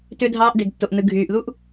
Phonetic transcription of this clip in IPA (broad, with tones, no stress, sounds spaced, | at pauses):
t ø˧ dʱ ɑː˧ ʔ d e˨ ɡ tː o˨ ʔ n ɯ˨ ɡʱ yː˨ ʔ ð u˦ ʔ